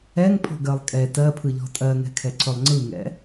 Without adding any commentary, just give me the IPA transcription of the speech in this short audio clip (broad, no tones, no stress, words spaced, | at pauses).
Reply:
ɛŋpʰɔ̤ɡɜlˠ kʼɛ tɜpʰɯʎɔ̤ tʼɜŋɛ̤kʰɛ ǀɵlˠŋ͡ǀɯŋɛ̰